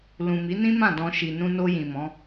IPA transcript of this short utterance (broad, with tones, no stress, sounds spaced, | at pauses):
l ũ˨ m i˨˦ n ĩ˦ m ã˦˨ d ɔ̃˧ ʃ i˨ n ũ˧ n o˧ j ĩ˨ m ɔ̃˨˦